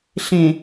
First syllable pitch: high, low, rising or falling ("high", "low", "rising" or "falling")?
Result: low